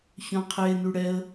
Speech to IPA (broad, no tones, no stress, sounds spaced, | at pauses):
ç œ̃ qʰ e n y ɽ ɛ ə̯